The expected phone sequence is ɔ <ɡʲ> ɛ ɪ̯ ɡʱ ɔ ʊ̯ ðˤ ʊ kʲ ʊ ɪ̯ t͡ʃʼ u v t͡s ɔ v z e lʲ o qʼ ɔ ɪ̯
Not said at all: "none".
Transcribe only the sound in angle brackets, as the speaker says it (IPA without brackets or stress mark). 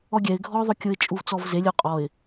ɡʲ